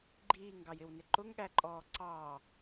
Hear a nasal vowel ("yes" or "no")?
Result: no